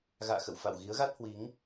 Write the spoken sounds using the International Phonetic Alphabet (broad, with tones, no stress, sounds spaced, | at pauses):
ɣ a̰ː˧˨ x ə̰˧˨ w f a̰˧˨ w ɣ i˨˦ ə̯ ɣ a˦˥ t̚ h w i˨˦ ŋ